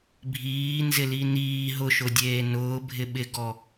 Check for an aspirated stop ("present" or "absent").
absent